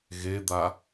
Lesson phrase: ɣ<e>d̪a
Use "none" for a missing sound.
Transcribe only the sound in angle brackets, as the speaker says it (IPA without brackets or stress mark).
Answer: e